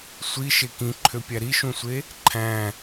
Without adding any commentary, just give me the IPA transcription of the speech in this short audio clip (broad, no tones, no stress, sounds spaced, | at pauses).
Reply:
sʷ i ʃ e k ĩ ǃʰ ø pʲ æ ɾ i ʃ ũ sʷ e | ǃʰ æ̃